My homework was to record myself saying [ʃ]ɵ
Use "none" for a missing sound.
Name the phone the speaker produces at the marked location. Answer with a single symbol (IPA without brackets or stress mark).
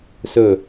s